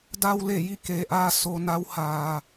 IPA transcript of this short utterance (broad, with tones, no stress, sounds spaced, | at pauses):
d a˧ w l e˧˩ j i˥˨ k eː˩˧ ʔ aː˧ s o˧ n a˧˥ w h aː˩